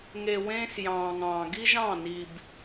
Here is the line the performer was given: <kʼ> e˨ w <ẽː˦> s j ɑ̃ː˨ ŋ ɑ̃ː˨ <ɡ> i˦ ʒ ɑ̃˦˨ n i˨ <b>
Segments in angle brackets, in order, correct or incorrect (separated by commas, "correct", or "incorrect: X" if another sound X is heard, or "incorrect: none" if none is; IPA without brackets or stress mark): incorrect: ŋ, correct, correct, correct